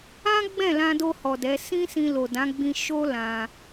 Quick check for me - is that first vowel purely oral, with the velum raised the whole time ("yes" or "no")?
no